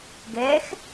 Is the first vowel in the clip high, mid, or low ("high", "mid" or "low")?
mid